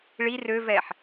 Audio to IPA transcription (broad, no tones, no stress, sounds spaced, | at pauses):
ɭ i r ø v ɛ ħ